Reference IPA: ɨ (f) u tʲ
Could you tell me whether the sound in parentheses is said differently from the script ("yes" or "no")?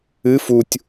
no